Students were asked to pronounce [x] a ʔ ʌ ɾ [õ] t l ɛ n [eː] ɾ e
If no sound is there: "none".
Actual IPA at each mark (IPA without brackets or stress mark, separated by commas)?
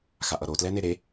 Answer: x, o, e